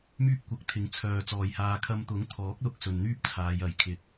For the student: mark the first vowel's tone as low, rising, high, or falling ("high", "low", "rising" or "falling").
high